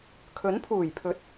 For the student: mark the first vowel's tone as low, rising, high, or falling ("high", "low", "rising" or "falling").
rising